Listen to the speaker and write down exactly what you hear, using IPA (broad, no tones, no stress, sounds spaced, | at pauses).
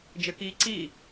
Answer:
d͡ʒ ɘ k iː ǀ iː